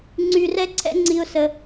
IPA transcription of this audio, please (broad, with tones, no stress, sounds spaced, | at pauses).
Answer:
ŋ͡ǀ y˧ r ɛ˦ ǀʰ ɛ̰˦ ŋ͡ǀ i˦ ʊ̯ s ə˦